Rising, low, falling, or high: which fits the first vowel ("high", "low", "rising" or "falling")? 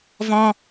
high